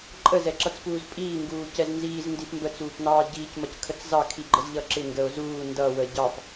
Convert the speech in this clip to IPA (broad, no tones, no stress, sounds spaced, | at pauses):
ǃʼ ə z ɛ ǁ ʌ t͡s p uː z pʼ iː ŋ ɡ uː c ɛ z n z iː z n d i p m b ə t͡s uː p n ɑː ɟ iː c m ʌ c kʰ ə t͡s z ɑ kʰ i ɡ͡ǃ ə z ʎ ʌ ǁ ɪ ŋ ɡ ə o̯ z uː n d ʌ w ə ɟ ɑ p